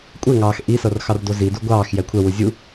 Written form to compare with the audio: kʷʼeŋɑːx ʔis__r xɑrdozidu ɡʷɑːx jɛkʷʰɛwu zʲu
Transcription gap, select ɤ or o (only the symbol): ɤ